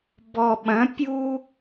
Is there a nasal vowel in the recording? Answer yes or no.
yes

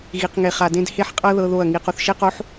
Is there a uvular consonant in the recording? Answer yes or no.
yes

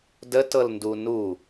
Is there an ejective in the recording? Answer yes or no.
no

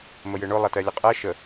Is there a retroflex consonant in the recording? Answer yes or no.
yes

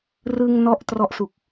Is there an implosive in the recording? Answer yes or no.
no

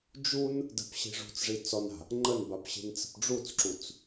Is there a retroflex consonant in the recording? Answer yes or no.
yes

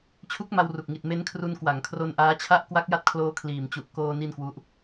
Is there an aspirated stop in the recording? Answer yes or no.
yes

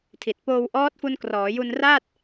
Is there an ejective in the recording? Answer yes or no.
no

